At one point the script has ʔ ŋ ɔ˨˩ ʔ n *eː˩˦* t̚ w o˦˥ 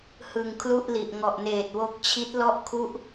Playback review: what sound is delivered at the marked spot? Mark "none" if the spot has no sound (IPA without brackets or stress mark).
eː˨˩